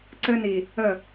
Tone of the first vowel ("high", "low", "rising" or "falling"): high